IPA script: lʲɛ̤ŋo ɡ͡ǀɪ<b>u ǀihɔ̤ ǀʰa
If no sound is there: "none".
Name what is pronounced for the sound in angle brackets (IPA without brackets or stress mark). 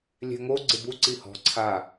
b